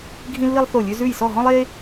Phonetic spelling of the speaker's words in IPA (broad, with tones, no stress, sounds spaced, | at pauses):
ɡʱ ĩ˥ lː i˥ lˠ θ o˥˧ lʲ ʉ˥ z ʉ˥˧ j s ɔ˥˧ ɦ ɔ̃˥ lˠ e˥